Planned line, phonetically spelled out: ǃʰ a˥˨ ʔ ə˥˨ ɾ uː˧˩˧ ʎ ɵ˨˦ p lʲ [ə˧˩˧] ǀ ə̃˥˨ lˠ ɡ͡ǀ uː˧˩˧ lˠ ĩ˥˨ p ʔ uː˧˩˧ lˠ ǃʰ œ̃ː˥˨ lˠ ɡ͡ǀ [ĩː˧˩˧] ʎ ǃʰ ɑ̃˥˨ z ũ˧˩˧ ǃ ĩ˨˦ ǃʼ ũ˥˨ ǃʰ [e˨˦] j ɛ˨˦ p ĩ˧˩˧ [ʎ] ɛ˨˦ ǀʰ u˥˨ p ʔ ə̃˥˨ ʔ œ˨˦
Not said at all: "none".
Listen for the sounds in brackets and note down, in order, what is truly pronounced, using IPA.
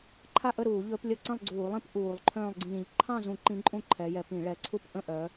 ə˧˩˧, ĩː˧˩˧, ɛ˨˦, ɭ

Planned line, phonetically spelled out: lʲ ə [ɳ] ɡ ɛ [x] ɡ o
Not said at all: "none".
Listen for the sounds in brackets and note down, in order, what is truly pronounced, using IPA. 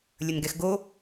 n, x

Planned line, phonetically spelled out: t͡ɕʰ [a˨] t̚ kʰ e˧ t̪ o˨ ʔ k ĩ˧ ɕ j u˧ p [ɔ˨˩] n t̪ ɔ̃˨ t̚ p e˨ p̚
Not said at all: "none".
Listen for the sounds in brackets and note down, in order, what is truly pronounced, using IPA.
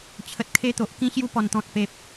ə˨, ɔ˨˩

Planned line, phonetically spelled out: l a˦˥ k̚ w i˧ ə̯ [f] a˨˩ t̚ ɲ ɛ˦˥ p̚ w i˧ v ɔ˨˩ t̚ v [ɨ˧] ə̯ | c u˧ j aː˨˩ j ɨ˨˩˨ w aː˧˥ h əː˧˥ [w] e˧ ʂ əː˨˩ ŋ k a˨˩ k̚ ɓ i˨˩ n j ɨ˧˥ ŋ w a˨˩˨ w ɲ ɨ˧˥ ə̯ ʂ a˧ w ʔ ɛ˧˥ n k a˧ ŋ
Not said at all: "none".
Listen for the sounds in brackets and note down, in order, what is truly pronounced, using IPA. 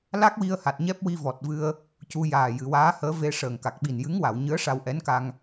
h, ɨ˧, v

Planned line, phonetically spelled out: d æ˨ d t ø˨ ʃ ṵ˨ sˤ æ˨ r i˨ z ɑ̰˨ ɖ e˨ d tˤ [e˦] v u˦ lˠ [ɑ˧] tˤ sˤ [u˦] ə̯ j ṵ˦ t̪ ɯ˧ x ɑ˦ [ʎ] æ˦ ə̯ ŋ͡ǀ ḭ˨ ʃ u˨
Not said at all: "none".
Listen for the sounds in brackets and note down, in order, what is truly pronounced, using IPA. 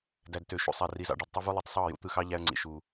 ø˦, ɑ˧, u˦˨, ʎ

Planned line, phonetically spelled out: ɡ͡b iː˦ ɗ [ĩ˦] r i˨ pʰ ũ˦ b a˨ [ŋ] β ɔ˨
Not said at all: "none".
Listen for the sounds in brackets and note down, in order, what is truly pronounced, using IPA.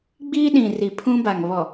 ĩ˨, ŋ

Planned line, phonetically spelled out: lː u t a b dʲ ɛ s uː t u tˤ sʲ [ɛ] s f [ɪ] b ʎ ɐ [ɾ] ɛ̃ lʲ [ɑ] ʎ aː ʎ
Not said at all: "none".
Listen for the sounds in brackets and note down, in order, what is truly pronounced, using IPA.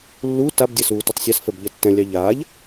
ɛ, ɛ, tː, ɑ

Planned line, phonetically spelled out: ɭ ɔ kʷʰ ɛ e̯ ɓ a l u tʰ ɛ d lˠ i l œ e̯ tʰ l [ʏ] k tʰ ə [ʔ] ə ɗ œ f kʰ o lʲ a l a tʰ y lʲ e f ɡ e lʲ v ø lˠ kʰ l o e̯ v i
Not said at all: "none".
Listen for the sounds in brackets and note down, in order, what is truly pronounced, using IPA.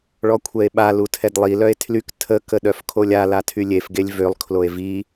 y, k

